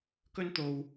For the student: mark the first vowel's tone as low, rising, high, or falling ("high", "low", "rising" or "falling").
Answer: high